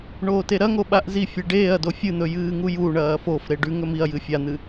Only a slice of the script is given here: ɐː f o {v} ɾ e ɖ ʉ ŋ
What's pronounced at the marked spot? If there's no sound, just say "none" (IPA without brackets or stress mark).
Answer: f